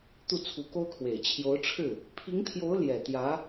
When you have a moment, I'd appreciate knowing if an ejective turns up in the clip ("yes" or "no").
no